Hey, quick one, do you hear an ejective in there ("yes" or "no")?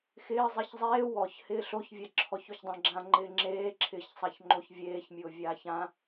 no